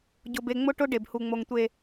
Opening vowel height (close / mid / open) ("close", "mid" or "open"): close